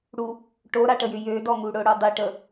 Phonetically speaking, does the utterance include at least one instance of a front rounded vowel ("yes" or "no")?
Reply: yes